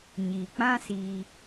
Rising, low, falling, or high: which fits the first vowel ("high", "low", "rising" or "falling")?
low